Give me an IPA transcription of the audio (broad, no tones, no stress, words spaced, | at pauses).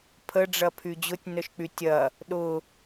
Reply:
pʰəɖ͡ʐɐpʰy d͡ʑʊtʲnœʃk͡py tʲɐ | ɗʊ